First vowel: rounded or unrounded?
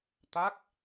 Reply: unrounded